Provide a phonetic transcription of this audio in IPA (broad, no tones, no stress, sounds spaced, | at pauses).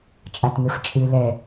t͡ʃʼ a t m e f t͡ʃʼ ɨ l ɛ